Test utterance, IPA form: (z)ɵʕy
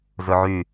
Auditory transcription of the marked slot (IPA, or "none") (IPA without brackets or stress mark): z